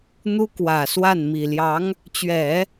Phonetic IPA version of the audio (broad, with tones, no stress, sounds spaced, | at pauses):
n̪ u˥ k w ä˨˩ s w a˥˩ n m i˨˩ l j ɑ˧˥ ŋ | t͡ɕ ɥ ɛ˨˩˦